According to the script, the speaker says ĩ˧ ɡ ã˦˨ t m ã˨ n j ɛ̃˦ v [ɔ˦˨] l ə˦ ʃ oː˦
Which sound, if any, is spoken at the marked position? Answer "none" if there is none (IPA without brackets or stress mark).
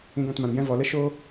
ɔ˨